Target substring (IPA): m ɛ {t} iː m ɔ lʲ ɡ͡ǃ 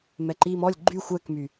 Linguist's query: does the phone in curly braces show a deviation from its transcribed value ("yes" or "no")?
yes